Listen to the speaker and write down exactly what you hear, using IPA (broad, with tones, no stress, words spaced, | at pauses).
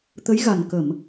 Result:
t̪ə˧˥jɣa˨˩n kə˨˩˨m